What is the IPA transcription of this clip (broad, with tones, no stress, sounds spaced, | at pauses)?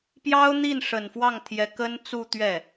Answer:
p j ɑ˥ ʊ̯ n̪ i˥˩ n ʂ ə˨˩ n f w ɑ˥˩ ŋ t̪ʰ j ɛ˧˥ k ə˥ n t͡s u˥˧ t̪ ɥ ɛ˥˩